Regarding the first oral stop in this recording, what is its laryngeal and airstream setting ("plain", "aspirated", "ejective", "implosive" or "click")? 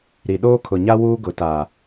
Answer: implosive